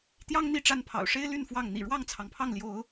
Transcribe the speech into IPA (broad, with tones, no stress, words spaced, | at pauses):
t̪jɑ˦ŋ n̪i˥˨ʈ͡ʂa˦npʰɑ̰˨˩ʊ̯ ʂe˦ɪ̯ly˥˨n fwɑ˥˨ŋ n̪ḭ˨˩ɻwɑ˥˨ŋt͡sʰɑ˩ŋpʰɑ˥˨ŋ ljo˨˦ʊ̯